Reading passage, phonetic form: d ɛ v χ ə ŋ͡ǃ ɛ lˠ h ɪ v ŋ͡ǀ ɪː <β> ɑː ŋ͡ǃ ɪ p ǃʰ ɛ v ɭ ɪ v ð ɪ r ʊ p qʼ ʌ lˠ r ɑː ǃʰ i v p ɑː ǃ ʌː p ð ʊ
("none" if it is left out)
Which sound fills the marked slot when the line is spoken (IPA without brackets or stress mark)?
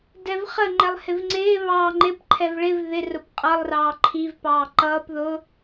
β